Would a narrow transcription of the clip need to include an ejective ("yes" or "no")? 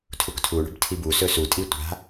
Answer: yes